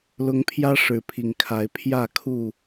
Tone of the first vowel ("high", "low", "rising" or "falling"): rising